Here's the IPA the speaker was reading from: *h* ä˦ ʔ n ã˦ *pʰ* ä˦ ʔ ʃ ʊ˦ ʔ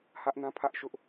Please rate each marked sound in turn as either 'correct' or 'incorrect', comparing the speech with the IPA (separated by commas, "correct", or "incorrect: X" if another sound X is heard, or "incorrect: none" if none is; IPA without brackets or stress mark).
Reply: correct, correct